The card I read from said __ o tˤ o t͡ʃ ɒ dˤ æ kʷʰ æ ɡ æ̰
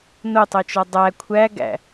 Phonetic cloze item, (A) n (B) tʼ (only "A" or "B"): A